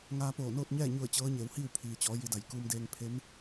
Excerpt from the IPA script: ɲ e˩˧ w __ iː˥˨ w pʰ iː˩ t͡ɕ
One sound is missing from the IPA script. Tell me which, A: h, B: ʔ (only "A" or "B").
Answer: A